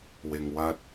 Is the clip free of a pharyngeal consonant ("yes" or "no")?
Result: yes